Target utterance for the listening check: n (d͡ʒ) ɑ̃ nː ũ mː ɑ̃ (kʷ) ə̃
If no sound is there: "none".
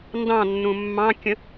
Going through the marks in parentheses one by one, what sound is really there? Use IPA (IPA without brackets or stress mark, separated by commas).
d, kʲ